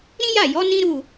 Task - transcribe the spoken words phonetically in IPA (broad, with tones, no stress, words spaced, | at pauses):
ɾĩ˦ja˦˨jɔ˨˦ nĩ˦ɾu˦˨